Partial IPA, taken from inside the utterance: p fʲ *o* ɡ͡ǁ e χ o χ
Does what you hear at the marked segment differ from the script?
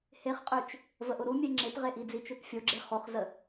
no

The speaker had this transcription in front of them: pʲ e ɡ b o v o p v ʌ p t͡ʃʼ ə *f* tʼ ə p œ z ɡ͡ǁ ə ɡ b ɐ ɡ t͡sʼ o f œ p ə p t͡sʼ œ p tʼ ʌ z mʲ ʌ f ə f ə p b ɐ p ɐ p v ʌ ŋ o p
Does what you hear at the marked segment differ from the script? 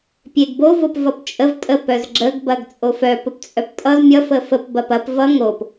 yes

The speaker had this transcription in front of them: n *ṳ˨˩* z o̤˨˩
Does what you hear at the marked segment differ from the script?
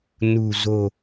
no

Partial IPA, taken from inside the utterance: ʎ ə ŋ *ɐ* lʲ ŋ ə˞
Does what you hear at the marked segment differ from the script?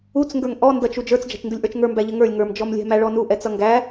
yes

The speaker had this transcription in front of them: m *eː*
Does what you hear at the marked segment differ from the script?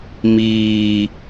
yes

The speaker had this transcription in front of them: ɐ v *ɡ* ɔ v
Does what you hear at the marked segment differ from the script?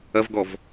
no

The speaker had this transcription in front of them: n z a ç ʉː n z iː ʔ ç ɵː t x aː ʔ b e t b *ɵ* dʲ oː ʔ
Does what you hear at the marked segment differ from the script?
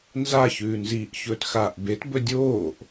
no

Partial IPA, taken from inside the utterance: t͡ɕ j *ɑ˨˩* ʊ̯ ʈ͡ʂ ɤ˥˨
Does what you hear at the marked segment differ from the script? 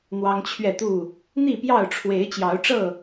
yes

